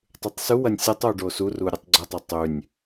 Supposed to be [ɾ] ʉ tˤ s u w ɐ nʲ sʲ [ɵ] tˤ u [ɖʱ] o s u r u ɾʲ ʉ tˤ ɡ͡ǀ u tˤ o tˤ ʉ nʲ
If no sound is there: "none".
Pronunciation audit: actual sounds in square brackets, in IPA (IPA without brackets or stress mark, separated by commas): tˤ, ɵ, ɖ